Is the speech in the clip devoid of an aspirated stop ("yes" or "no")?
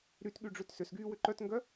yes